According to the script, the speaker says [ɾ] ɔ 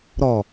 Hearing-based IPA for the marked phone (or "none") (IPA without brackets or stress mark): ɾ